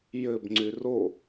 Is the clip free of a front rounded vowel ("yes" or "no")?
no